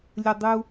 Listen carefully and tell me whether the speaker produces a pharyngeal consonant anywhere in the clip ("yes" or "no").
no